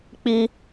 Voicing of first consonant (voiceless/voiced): voiceless